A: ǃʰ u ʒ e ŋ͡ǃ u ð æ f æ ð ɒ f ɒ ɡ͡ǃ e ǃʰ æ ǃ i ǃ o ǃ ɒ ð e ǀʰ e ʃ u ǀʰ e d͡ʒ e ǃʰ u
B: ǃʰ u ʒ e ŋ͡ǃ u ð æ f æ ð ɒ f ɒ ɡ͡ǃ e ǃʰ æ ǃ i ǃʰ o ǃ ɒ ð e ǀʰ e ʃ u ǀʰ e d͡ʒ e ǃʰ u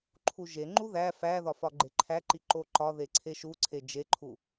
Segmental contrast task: A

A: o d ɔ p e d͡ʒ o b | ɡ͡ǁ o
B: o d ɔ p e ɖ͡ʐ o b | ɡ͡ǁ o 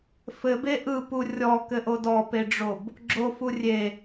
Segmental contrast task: B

